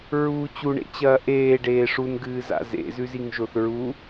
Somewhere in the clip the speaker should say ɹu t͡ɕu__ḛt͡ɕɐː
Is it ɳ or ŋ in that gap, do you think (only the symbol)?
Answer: ɳ